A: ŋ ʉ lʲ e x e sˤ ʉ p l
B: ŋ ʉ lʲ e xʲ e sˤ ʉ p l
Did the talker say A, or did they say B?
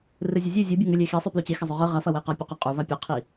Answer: A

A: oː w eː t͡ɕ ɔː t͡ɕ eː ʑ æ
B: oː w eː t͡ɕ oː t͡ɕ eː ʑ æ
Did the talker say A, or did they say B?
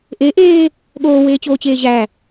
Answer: B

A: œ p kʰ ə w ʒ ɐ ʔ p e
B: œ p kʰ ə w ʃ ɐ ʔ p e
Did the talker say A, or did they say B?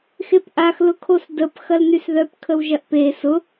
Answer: A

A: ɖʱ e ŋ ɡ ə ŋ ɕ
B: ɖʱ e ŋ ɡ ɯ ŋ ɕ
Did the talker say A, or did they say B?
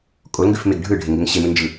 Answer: A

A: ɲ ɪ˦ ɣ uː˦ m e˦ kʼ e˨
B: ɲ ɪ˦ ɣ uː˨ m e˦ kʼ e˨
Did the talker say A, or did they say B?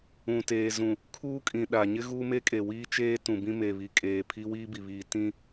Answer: A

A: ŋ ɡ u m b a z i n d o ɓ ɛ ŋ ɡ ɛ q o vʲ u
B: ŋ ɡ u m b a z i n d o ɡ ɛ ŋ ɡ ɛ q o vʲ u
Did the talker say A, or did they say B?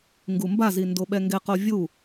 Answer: A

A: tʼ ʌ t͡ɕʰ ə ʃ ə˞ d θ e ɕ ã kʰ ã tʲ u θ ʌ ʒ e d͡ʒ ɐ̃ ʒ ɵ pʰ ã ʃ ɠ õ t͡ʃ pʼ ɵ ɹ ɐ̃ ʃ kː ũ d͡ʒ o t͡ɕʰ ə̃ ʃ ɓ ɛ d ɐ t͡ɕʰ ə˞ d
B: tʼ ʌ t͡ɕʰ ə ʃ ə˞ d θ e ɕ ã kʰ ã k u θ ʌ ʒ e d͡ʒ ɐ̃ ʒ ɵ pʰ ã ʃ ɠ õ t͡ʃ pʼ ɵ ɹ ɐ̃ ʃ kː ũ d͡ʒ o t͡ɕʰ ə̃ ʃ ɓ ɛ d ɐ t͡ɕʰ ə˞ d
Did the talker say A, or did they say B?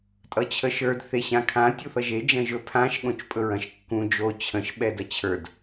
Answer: A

